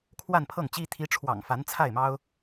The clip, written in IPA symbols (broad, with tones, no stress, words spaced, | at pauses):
kʰwa˥˧npʰɤ˥˩ŋt͡ɕi˥ t̪ʰi˧˥ʈ͡ʂʰwɑ̰˨˩ŋ fa˧˥nt͡sʰa˥˩ɪ̯mɑ˥ʊ̯